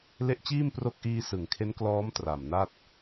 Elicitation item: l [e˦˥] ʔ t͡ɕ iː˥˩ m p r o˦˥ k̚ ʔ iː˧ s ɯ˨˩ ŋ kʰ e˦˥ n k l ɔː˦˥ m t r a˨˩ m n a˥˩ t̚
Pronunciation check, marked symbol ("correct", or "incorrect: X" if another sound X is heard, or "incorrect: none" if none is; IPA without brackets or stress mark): correct